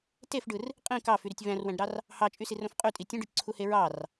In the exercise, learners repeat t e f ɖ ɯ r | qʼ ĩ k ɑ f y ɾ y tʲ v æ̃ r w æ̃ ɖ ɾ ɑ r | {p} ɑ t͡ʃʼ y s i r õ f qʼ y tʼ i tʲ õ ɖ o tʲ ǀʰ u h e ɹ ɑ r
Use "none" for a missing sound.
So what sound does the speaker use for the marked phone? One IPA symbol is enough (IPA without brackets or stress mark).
h